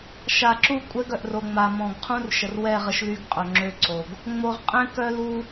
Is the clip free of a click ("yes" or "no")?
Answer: no